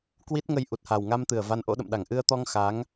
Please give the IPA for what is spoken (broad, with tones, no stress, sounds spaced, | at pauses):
k w i˦˥ t̚ ŋ ə˧ j ʔ u˨˩ t̚ h a˨˩ w ŋ a˧ m t̪ ɨ˨˩ ə̯ v a˧ n ʔ o̰˧˥ ɗ ə̰˧˨ m ɗ a˧˩ ŋ ʔ ɨ˧ ə̯ t̪ ɔ˧ ŋ x a˨˦ ŋ